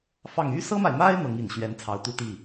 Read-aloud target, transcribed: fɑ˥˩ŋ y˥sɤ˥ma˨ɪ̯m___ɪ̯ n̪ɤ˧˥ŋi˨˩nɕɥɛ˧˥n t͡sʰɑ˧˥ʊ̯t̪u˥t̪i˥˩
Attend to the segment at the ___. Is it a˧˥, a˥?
a˥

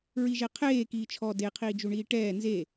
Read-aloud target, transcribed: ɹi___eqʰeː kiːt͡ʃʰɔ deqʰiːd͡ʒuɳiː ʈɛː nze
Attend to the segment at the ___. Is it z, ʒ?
ʒ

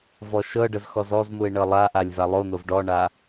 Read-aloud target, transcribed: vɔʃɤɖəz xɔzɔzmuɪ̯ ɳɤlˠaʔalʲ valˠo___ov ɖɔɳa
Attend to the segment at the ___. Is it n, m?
n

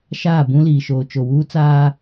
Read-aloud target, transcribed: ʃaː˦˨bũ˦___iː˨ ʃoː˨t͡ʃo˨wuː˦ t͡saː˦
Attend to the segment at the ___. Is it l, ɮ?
l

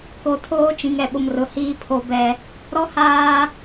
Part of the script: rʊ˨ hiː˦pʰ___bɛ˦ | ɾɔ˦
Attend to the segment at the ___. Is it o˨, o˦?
o˦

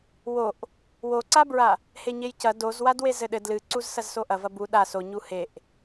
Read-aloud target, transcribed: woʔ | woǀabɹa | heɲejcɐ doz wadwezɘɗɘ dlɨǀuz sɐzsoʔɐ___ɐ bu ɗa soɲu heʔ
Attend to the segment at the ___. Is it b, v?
v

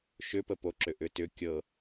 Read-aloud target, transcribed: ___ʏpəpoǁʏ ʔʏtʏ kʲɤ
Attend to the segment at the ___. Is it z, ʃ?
ʃ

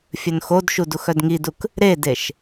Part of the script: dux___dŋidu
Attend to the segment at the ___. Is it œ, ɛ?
œ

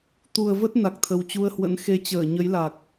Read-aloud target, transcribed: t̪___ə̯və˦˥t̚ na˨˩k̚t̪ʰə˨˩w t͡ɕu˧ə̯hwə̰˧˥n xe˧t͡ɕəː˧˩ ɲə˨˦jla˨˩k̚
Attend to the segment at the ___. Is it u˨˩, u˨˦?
u˨˩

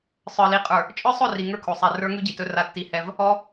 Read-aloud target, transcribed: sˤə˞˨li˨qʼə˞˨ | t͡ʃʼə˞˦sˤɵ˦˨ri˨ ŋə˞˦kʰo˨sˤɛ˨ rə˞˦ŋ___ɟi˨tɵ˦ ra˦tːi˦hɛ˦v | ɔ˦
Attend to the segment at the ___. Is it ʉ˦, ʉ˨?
ʉ˦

